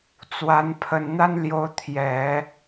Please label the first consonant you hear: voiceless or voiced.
voiceless